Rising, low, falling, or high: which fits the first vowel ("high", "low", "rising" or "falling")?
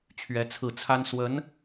rising